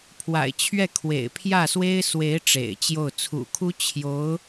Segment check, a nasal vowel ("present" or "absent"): absent